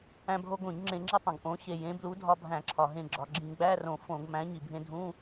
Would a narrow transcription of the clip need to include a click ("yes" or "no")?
yes